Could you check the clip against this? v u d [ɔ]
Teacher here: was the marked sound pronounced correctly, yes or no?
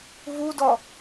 yes